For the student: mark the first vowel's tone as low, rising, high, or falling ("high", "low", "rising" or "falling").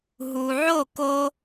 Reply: low